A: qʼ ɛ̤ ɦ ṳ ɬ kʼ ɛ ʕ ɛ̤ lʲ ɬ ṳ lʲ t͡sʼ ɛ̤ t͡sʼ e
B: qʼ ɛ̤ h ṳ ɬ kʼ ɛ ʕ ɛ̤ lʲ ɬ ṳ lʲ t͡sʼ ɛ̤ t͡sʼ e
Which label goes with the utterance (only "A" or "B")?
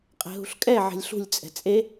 A